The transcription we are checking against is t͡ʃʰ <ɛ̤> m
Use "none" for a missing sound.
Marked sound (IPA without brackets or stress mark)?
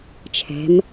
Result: ɛ̤